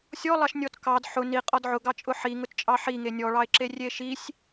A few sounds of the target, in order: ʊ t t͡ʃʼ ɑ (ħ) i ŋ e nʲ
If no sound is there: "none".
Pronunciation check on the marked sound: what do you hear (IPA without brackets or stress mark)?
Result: ħ